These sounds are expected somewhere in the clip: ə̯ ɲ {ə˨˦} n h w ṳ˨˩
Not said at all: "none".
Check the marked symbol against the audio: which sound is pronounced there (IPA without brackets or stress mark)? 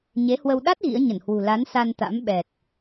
ə˧˩